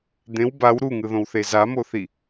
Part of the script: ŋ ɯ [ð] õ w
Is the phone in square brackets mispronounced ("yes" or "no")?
no